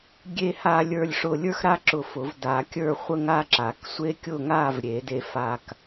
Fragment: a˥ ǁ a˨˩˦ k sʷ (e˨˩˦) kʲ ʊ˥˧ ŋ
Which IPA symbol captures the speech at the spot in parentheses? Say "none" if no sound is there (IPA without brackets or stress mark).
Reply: e˥